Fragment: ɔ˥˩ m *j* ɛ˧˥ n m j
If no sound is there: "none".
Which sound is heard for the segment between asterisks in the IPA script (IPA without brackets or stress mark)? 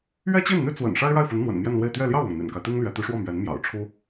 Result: ɥ